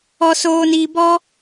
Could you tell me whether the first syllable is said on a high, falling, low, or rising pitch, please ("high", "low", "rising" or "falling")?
low